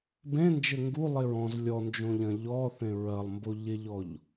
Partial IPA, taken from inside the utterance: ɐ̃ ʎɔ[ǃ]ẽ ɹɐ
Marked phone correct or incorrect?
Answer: incorrect